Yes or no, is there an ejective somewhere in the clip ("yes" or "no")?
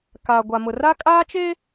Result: yes